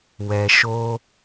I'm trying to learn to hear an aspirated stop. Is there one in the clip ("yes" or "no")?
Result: no